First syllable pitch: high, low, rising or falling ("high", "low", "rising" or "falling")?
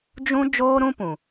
high